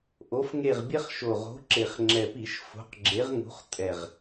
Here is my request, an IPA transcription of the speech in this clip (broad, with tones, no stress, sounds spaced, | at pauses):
ʔ o˨˥ f ŋ e˦˨ ʁ bʲ ɛ˦ χ ʃ o˨˩ ʁ o̤˨˥ ǁ e˨˩ χ ŋ͡ǁ ɛ˨˩ p i˧˩˧ ʃ f o̤˨˥ q ɡ͡ǁ e˨˥ ʁ ŋ ṳ˨˥ χ tʼ ɛ˨˩ ʁ